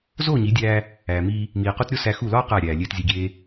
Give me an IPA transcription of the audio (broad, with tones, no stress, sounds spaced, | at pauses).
z oː˦˨ ɲ i˨˦ dʲ æː˧ | æː˨ m iː˧ | m iː˨ q u˧ t ɾʲ o˦ s æ˧ x u˦˨ l ɒː˦ q æ˦˨ ɾʲ æː˨ lʲ eː˧ t zʲ e˧ ɡʲ eː˦